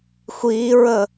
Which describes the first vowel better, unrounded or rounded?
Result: unrounded